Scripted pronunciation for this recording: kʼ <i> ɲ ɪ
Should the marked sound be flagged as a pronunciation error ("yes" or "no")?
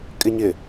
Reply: yes